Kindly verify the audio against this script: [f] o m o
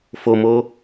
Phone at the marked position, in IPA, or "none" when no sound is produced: f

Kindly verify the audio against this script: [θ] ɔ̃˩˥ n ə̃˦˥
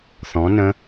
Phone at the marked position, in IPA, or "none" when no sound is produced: θ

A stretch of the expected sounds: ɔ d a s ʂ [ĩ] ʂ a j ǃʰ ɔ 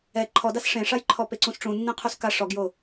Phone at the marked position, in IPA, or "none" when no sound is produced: ẽ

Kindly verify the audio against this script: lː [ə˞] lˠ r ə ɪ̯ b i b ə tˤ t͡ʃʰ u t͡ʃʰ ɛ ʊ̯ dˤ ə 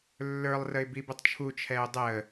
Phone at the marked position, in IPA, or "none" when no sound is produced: ə˞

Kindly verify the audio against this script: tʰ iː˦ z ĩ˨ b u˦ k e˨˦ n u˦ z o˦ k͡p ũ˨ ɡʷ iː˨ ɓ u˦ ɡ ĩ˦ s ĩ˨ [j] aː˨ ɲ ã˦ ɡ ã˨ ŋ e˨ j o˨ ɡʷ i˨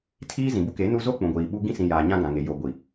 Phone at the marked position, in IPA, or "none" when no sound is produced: j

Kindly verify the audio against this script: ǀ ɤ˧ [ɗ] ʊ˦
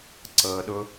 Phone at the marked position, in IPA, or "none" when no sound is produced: ɗ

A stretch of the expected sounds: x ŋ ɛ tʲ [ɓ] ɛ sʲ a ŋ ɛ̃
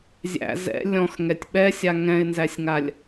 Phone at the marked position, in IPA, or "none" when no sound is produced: ɓ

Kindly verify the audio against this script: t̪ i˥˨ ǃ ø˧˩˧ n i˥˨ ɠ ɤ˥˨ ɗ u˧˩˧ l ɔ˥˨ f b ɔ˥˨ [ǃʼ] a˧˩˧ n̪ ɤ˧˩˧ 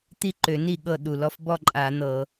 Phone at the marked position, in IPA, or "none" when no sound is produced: ǃʼ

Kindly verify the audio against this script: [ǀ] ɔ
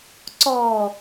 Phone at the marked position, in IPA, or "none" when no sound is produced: ǀ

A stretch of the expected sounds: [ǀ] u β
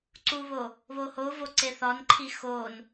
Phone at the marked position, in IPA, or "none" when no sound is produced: ǀ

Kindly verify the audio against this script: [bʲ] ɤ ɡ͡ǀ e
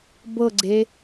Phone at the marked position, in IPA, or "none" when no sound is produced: b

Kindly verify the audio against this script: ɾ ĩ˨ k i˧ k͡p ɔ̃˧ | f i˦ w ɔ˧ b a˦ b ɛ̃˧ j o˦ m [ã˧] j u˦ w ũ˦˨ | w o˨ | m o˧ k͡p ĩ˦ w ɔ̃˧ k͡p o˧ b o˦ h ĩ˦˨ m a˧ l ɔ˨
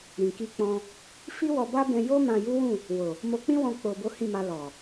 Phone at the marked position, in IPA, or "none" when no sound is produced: ã˧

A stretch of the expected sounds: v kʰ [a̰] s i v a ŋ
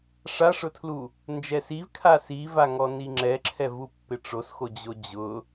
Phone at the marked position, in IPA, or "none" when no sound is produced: a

